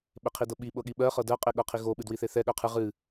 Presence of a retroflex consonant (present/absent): absent